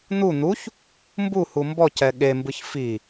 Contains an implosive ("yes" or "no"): yes